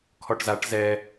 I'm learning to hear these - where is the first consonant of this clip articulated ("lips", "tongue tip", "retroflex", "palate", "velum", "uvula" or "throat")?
velum